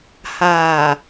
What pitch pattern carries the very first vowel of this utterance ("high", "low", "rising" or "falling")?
low